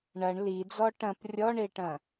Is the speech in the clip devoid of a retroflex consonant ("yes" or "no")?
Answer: no